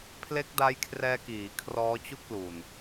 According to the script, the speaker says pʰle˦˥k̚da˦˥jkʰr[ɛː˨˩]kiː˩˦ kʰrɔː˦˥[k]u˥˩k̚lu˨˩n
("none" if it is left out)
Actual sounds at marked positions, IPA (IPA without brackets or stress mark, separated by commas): ɛː˧, t͡ɕ